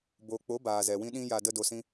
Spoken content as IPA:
bo˨k͡po˨˦ baː˨zɛ˨wĩ˦ɗĩ˦ ja˧də˦ do˧sĩ˦

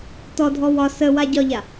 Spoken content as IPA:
tɔdʱɔ wɒ səwa ɟɒʎa

